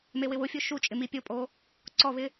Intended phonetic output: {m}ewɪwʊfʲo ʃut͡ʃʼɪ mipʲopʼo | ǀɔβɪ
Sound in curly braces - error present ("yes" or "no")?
no